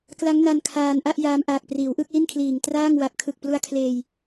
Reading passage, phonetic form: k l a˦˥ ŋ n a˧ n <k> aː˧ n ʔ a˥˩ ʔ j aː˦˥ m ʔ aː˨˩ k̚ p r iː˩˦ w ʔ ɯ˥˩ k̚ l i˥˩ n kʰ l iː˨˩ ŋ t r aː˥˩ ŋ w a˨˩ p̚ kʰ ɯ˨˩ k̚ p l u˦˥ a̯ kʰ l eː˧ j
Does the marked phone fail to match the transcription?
yes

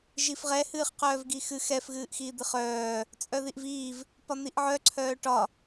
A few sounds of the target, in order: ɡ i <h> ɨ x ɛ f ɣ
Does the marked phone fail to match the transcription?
yes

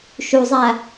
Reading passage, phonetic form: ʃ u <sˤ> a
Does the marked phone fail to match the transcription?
yes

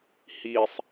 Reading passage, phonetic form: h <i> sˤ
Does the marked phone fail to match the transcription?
no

